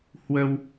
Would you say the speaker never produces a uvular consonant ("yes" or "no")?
yes